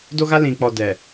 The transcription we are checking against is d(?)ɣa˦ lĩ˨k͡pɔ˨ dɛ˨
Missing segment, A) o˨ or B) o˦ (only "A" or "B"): B